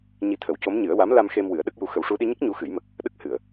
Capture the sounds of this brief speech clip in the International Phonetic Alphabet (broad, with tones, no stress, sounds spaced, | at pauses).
ɲ i˧ t̪ʰ ə˨˩˦ w c o˧˥ m ɲ ɨ˨˩˦ ə̯ w a˧˥ m l a˧ m x e˧ m w ɨ˨˩˦ ə̯ ɗ ə˦˥ k̚ j u˧ x ə˨˩ w ʂ u˧ ɗ i˧ ɲ ə˦˥ k̚ ɲ u˧˥ x ɨ˨˩˦ j m ə˨˩ k̚ | ɗ ə˦˥ k̚ h ɨ˨˩˨ ə̯